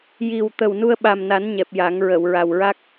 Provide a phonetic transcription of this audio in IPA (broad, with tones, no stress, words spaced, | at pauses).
ji˨˩w t̪ə˨˩wnu˧ə̯ɓa˨˩mna˨˩˦n ɲɛ˨˩p̚ja˨˩˦ŋɹə˨˩˨w ɹa˨˩wɹa˦˥k̚